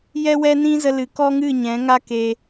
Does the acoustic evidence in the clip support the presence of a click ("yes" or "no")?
no